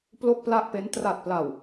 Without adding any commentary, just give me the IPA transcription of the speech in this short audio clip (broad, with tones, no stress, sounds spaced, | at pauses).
p l o˥˩ k̚ p l a˥˩ ʔ p e˦˥ n t r a˨˩ t̚ p l a˨˩ w